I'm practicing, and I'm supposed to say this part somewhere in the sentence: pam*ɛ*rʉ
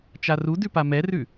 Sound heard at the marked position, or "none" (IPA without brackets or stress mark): ɛ